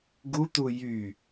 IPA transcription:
ɡ u t̪ u j y

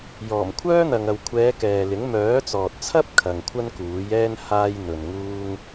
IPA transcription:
j ɔː˨˩ m kʷʰ œː˥ n̪ ɐ˨ ŋ ɐ˨ w kʷʰ ɛː˨˧ k ɛː˨ l ɪ˨˥ ŋ m œː˨˥ t͡s ɔː˨ t̚ t͡sʰ ɐ˥ p̚ kʰ ɐ˨ ŋ kʷʰ ɐ˥ n k uː˨˥ j ɛː˥ n h aː˥ j n̪ ɵ˨ n ŋ uː˥ ŋ

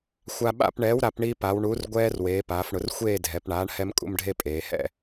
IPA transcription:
xʷ a˧ ɓ a̰˥˨ p ɳ ɛː˩˥ w ɾ a˩˧ p ɳ i˧ p a˩˧ w ɳ u˩˥ r ɡʷ ɛː˧ r w eː˩˧ p aː˩˧ f ɳ ʊ˩˧ r xʷ eː˥˨ dʱ ɛ˩˧ p ɳ aː˩˥ ɳ h ɛ˧ m kʼ ṵ˥˨ m ɖʱ e˥˨ pʼ eː˩˧ h ɛ̰˥˨

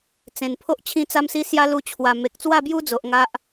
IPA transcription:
t͡s ẽ˨˩ n pʰ o˦ ʔ t͡ɕʰ ĩ˦ t͡s a˦ m s i˦ s j a˦ l u˧ t͡ɕʰ w a˨˩ m e˨ k̚ t͡s w a˥˧ b j u˦ d͡z o˨ ʔ ŋ a˦ ʔ

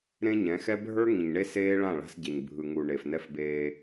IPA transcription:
ɾ ẽ˦ ɲ ɛ̃˨˦ x ɛ˦ bʱ ə˞˦ ŋ ĩ˨ ɲ ɳ e˦ s eː˦ ɭ ã˦˨ ɭ a̤˦ s ɟ e˨ ɲ bʱ ɯ˨ ŋ u˨ ɳ e˨ f n ɛ˦ f b eː˦

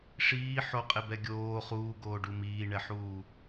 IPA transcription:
ʂ iː ħ o qʼ e b ɛ ɡʲ oː χ uː ɡ oː ɖ u m iː ɳ ɛ ħ uː

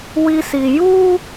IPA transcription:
w i˦ s i˨ j u˦

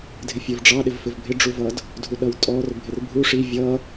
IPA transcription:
dʱ ɪ fʲ ə˞ v ɖ͡ʐ ɑ ɗ ɪ v f ɪ v bʱ ɪ ɖ͡ʐ u v ʌ d | dʱ u ɗ ʌ w tʼ ɔ r bʱ ɪ r bʱ u ʂ i vʲ ʌ

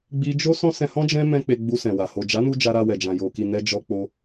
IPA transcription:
ɡ͡b i˧ d͡ʒ o˦ s ɔ̃˦ s ɛ̃˧ h ɔ̃˦ d͡ʒ ɛ̃˦ m ɛ̃˦ k͡p e˧ ɡ͡b u˧ s ɛ̃˨ w a˨ h o˨ d͡ʒ a˨˦ n u˧ d͡ʒ a˧ ɾ a˧ w ɛ˨ d͡ʒ ã˨ j o˨ k i˨ n ɛ˧ d͡ʒ ɔ˧ k͡p o˧

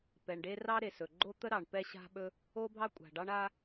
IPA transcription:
p ɛ˩ ɳ ɖ e˥ r ɑ˥ ɾ e˩ s ɵ˩ ɡ͡ǃ o˥ t̪ ə˥ ɾ ɑ˩ ɳ p ɛ˥ ɕ a̤˥ ɓ ɵ˥ | o˥ bʱ ɑ˥ kʷʼ a̤˩ ɖ ɑ˥ ɳ a˥

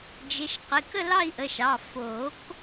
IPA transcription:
d͡ʒ ɪ˩˧˩ ʃ q ɪ˩˧˩ k ə˥˧ l ɑ˥˧ i̯ ʔ ə˩˧˩ ʃ ɑ˩˧˩ f o˨˩˦ k

